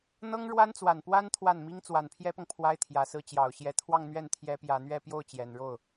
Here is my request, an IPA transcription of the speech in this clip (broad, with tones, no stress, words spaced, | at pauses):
n̪ɤ˥ŋɻwa˥nt͡swa˨˩npwa˥n t̪ʰwa˥˩nmi˥ŋ t͡swa˨˩npʰjɛ˥pɤ˨ŋ pʰwa˥ɪ̯t̪ʰjä˨˩sɹ̩˥˩ t͡ɕjɑ˨˩ʊ̯ɕjɛ˧˥t̪ʰwɑ˥˧ŋ n̪ɥɛ˥˩nt̪ʰjɛ˧˥ pjä˨˩n̪ɥɛ˥˧pjo˥˩ʊ̯ t͡ɕjɛ˨˩nɻo˥˩ʊ̯